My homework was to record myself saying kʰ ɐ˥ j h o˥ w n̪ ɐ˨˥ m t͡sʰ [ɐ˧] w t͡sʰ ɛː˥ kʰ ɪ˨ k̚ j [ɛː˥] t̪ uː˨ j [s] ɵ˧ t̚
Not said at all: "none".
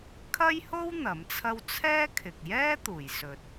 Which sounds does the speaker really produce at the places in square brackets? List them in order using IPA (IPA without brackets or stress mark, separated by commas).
ɐ˥, ɛː˥, s